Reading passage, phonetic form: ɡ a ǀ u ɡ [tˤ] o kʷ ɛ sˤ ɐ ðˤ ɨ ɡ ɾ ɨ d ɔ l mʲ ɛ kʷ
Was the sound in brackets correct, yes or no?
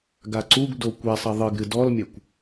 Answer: no